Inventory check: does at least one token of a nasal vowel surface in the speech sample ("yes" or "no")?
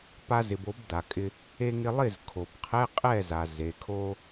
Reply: no